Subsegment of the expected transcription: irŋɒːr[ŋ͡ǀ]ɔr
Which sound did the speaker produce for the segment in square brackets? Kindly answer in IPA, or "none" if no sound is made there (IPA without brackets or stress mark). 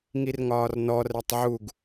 n